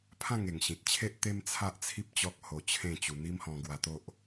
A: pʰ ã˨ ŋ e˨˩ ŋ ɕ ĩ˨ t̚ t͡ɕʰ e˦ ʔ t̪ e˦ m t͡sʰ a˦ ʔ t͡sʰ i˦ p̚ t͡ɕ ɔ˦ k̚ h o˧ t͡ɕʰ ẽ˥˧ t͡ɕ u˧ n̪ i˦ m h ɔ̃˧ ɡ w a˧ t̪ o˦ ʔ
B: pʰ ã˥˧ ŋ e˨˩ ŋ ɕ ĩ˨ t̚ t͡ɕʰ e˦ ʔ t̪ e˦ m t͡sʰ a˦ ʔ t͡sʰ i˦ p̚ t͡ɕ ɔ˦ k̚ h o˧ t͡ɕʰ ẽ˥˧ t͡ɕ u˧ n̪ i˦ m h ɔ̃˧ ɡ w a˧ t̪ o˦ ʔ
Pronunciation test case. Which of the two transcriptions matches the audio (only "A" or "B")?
B